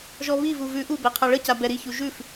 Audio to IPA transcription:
ʒ ɔ β i v u v ʉ ʔ u b ɛ qʰ a ɭ ə c a b ɛ ɾ i ç u ʒ ʉ f

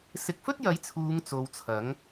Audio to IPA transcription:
s ɪ˨˥ k̚ f ɵ˥ t̚ j ɐ˨˥ j t͡sʰ uː˨˧ ŋ t͡s o˧ w t͡sʰ ɐ˨˥ ŋ

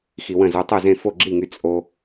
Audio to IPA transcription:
x i˧ w ə̃˥˨ z u˧ tˤ u˥˨ z ẽ˥˨ f o˥˨ ɡ͡ǁ i˥˨ ŋ y˧ t͡sʼ o˧

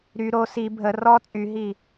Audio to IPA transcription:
ɾ y ɾ o s i bʱ ə r ɔ t͡sʼ y ɦ i

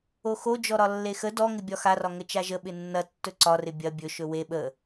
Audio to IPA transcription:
o x o d͡ʒ ɔ ɾ ɒ lː e x ə d ɔ ŋ ɪ bʲ ɒ x a r ɒ ŋ ə t͡ʃ a ʒ ə ɓ ɪ nː ɐ tː ɵ ǀ ɒ r ɪ bʲ ɐ bʲ ɵ ʃ ɵ w e ɓ ə

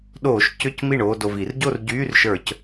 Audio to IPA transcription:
ɗ oː˧˩˧ ʃ c ʏ˧˥˧ c m i˥˩ ɳ oː˥˧ d o˨˩ v i˧˩˧ r ɟ o˥˧ r ɟ yː˧˥˧ r ʃ ə˞˧˩˧ c

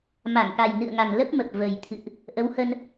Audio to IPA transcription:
m a˧˩ ŋ k a˨˩ j n ɨ̰˧˨ ə̯ ŋ a˨˩ ŋ l ə˦˥ p̚ m ə˨˩ p̚ v ə˨˩ j t̪ʰ ɨ̰˧˨ ʔ | ʔ ə˨˦ w h ə˧ n

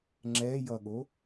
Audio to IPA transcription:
ŋ͡ǁ ɛ j ʌ ɠ o

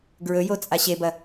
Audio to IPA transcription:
ɡ ɹ ɵ j o t͡sʼ a ɕ e b ɐ

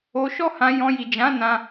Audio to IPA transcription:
o˧ ʃ ɔ˦ h ã˧ j ɔ̃˧ j i˨ d͡ʒ ã˨˦ n ã˧

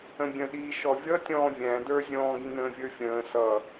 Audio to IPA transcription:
ə̃ bʲ ə̃ ɗ iː ʃ ɔ vʲ ʌ tʲ ɔ̃ː vʲ æ̃ d ə˞ zʲ ɔ̃ː ɡ ĩ n ə̃ː vʲ ə˞ fʲ ə̃ː s ʌ

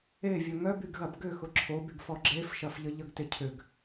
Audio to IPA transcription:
e vʲ ɐ ŋ œ b y ɡ ɣ ɐ b ɡ ʏ x ʊ ǁʰ o b y ɡ f ɔ ɡ͡ǁ e f ʃ ɐ f ʎ ə ʎ ə ɡ t ɪ cʰ ʏ ɡ

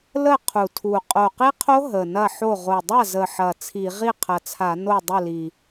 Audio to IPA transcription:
l ə˥˩ qʰ u˨˩ tʰ u˨˩ qʼ o˨˩ q i˦˥ qʰ o˦˥ ɦ ə˨˩ n ɐ˥˩ ħ o˥˩ ʁ o˨˩ dˤ a˥˩ z ə˨˩ ħ ɐ˨˩ t͡sʰ i˧˩˧ ʁ i˥˩ qʰ ɐ˨˩ t͡sʰ a˧˩˧ n o˥˩ dˤ ə˥˩ l i˨˩

